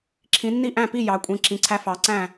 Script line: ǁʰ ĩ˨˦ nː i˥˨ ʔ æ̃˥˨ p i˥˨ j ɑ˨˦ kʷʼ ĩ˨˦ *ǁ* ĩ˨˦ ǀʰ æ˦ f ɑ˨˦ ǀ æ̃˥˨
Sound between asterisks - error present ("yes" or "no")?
no